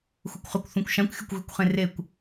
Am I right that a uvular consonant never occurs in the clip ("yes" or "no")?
no